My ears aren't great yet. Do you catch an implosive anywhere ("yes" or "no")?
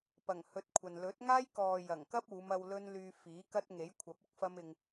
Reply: no